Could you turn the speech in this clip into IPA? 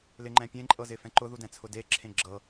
l ɪ ŋ͡ǃ ɛ̃ pʲ ẽ ǃʼ ɤ z ɪ f ɛ̃ ǃ ʊ ð u d ɛ̃ t͡sʰ ʊ d e ǁʰ ẽ ɡ͡ǁ ɤ

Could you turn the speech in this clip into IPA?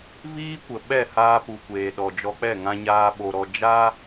v iː˦ kʷ ə˨ ɓ ɛ˦˨ h aː˧ p u˨ kʷ eː˨ ɗ ɔ˨ d͡ʒ ɔ˧ k͡p ɛ˦˨ ŋ ã˧ ɲ aː˧ ɓ o˧ ɾ ɔ˧ d͡ʒ a˦

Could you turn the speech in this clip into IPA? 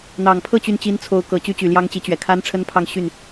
n̪ ɑ˨˩ ŋ pʰ ɤ˥˧ t͡ɕ y˥˩ n t͡ɕ i˥ n t͡sʰ o˧˥ ʊ̯ k ɤ˨˩ t͡ɕ y˥ t͡ɕ y˨˩ l j ɑ˥ ŋ t͡ɕ i˧˥ t͡ɕ ɥ ɛ˨˩ kʰ a˥ n ʈ͡ʂʰ ə˥ n pʰ ɑ˥˧ ŋ ɕ y˥˩ n

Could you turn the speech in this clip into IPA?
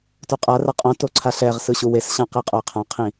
t o qʼ a r a qʼ õ t o ǀʰ a ɬ ɛ ʁ s ɯ ɕ u w e s ɕ ã q i qʼ o ə̯ qʰ ã qʰ ĩ

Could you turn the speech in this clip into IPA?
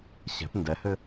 ɕ ɛ̤ p n d ɛ h ɘ

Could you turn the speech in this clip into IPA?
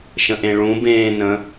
ʃ ə̃ ʔ ẽ ɭ ũ b ẽː n ə̃

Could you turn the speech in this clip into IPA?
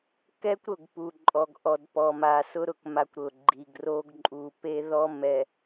k ɛ˦ kʷ ɾ ʊ˦˨ ɡ p u˨ ǃʼ ɔ˨ ɡ ʔ ɔ˨ d p ɔ˨ m a˨ s ʊ˦ ɾ ʊ˨ k m a˦ kʷ ɾ ʊ˨ ɡ͡ǃ i˨ ɡ r o˦ ɡ ǃʼ u˨ p e˦ ð ɔ˦ m ɛ˨

